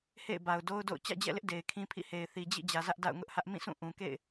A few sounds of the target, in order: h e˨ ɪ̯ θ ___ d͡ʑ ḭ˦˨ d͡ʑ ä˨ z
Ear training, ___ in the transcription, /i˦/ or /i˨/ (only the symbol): i˨